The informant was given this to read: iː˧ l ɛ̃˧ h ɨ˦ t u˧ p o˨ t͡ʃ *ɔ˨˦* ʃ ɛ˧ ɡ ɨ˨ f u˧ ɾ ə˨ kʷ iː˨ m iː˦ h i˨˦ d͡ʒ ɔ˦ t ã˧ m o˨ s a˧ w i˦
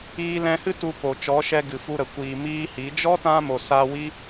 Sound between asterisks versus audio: correct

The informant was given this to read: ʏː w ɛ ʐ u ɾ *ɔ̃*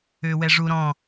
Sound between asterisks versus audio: correct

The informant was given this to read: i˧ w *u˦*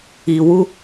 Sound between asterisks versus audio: correct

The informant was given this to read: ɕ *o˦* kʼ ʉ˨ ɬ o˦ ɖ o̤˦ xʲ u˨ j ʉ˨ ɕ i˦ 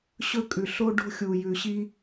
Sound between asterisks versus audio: incorrect: ɵ˦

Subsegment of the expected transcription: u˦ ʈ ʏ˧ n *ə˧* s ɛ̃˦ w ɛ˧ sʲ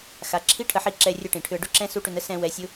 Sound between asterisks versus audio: incorrect: ə˦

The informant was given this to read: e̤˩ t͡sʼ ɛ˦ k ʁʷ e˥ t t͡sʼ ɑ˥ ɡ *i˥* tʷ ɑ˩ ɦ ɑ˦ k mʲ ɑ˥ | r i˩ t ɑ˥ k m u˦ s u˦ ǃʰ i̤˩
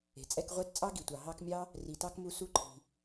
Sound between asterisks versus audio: incorrect: i˩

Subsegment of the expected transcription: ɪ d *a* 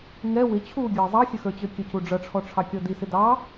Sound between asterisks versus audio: incorrect: ɑ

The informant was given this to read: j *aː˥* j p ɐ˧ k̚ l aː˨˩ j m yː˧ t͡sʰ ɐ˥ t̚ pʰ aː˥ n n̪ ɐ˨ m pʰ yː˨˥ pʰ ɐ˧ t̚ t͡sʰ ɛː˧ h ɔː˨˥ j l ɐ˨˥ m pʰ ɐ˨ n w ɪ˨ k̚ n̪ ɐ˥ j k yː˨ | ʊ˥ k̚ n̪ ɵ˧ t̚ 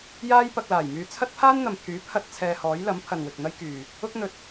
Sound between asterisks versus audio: correct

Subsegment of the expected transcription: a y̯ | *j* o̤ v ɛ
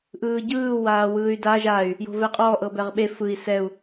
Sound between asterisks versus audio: correct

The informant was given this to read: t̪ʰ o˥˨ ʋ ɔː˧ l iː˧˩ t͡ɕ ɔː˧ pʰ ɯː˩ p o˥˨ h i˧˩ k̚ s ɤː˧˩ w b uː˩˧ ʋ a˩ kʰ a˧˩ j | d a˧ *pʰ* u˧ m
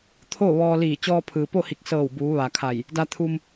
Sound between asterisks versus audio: incorrect: t̪ʰ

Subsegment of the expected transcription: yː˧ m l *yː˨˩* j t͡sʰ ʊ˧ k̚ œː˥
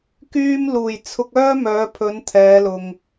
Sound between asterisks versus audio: incorrect: uː˨˩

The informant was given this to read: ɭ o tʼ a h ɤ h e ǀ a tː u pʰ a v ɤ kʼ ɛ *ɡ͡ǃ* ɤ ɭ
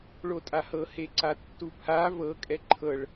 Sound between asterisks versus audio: incorrect: ǃʰ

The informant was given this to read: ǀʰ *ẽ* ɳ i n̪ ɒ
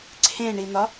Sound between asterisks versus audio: correct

